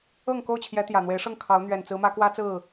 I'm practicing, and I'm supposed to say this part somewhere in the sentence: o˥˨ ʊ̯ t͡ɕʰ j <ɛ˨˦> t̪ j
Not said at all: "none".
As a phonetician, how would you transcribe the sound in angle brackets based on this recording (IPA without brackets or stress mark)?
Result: ɛ˨˦